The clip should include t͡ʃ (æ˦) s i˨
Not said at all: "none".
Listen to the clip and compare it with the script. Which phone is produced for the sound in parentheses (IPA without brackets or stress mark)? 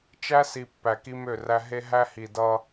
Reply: æ˦